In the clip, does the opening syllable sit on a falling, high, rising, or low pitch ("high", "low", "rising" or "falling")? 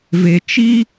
low